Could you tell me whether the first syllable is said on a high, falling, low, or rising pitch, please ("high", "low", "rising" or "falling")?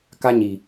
high